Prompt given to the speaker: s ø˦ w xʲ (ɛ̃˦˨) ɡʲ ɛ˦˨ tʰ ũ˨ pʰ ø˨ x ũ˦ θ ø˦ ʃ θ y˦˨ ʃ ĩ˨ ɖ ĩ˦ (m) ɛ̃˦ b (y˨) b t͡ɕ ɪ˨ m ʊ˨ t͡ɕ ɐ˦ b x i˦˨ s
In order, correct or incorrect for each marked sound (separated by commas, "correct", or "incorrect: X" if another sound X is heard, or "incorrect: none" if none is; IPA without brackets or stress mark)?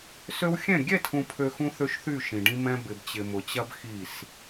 correct, correct, incorrect: ɪ˨